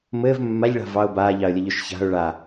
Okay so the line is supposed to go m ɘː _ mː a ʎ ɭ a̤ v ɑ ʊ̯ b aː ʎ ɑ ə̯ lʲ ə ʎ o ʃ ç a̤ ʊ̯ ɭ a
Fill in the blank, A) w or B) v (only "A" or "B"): B